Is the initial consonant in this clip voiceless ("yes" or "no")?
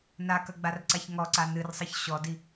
no